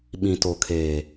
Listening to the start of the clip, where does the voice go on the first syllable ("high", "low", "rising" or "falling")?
low